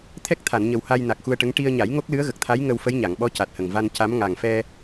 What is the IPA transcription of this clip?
t̪ʰ ɛ˦˥ k̚ t̪ʰ a˨˩˨ n ɲ ə˨˩ w h a˧ j n a˨˩ k̚ x u˧ ə̯ ʈ ə˧˥ ŋ ʈ i˧ ə̯ ɲ a˨˩˦ j ŋ o˦˥ k̚ l ɨ˧˥ ə̯ ɣ ə˨˩ k̚ t̪ʰ a˧˥ j ŋ ə˧ w f ə˧˥ j ɲ a˨˩˨ ŋ ɓ ɔ˧˥ c a˨˩ t̚ h ə˨˩ ŋ v a˧ n c a˧˥ m ŋ a˨˩ ŋ f ɛ˧

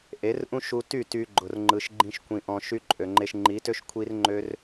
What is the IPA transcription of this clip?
ʔ e˨˦ r ʔ ũ˦ ʃ u˦ t y˦˨ t y˧ ɡ͡ǃ ʊ˨ r ŋ͡ǃ ɯ˨ ʃ ɡ͡ǃ ĩ˦ ʃ kʷ ĩ˧ ʔ ɔ̃˧ ʃ y˦ ǃʼ ø˨ ŋ͡ǃ e˧ ʃ ŋ͡ǃ i˨˦ t ø˦ ʃ kʷʰ i˦ r ŋ͡ǃ ø˦ r

